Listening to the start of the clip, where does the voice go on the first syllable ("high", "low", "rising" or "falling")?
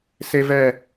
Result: high